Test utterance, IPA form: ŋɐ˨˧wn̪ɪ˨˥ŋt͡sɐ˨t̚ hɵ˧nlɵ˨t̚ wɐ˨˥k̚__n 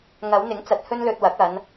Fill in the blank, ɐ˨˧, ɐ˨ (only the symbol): ɐ˨˧